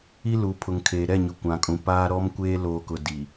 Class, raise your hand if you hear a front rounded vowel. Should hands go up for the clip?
no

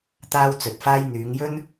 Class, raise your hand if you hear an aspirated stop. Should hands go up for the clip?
no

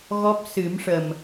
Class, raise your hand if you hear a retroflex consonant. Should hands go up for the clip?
yes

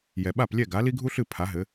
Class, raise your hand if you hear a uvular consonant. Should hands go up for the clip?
no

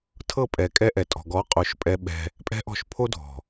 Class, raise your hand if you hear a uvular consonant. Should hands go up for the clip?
yes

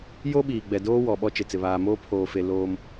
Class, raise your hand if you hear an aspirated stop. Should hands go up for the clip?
yes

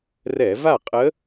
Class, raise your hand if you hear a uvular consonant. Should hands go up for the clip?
yes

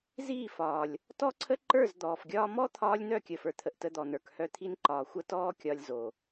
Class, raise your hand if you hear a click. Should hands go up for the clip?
yes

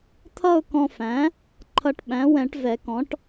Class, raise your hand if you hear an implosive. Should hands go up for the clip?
yes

